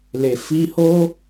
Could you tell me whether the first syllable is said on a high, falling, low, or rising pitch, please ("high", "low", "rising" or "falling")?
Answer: low